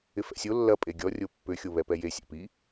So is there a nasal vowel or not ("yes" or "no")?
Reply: no